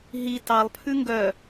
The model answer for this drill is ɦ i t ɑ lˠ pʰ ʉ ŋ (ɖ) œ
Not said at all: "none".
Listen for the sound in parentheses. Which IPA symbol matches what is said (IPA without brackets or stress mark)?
ɡ